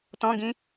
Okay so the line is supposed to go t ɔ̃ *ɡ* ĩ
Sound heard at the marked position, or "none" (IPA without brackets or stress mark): ɡ